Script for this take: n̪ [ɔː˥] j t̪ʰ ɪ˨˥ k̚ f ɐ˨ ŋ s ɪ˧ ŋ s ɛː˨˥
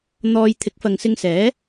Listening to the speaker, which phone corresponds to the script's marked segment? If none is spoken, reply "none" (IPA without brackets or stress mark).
ɔː˧